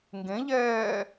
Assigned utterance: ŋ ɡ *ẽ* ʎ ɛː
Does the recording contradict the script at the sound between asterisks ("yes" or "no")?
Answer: no